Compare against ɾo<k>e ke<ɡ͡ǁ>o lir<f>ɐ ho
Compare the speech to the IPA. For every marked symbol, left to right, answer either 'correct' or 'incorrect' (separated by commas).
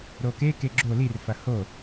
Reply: correct, correct, correct